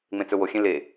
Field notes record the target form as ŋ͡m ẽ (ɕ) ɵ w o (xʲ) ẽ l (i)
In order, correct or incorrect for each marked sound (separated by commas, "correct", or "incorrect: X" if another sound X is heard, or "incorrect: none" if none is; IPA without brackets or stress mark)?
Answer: incorrect: t͡s, correct, incorrect: e